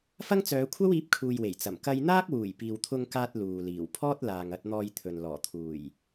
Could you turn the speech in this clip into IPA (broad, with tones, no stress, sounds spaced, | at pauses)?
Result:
f ɐ˥ ŋ t͡s œː˨˧ kʷʰ ɐ˥ w iː˨˥ p̚ kʰ uː˨ j w e˨˩ j t͡s ɐ˨˩ m k ɐ˧ j n̪ aː˥ k̚ w uː˨˩ j p iː˨ w t̪ʰ ʊ˧ ŋ k aː˧ t̚ l uː˨ l iː˨˩ w pʰ ɔː˥ t̚ l aː˨ ŋ ɐ˧ t̚ n̪ ɔː˧ j t̪ʰ ɵ˨ n l ɔː˨˩ t̪ʰ uː˨˩ j